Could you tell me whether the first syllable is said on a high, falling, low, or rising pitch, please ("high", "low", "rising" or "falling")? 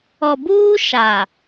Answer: low